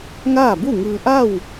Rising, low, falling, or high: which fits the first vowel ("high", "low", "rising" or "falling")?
falling